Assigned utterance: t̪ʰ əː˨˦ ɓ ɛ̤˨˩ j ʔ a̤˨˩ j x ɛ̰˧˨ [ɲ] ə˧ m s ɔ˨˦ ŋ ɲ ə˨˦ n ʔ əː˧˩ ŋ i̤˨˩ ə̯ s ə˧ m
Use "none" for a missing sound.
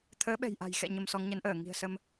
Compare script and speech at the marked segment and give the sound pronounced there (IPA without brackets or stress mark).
ɲ